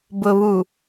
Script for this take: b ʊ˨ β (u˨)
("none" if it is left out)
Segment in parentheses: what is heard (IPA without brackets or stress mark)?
u˨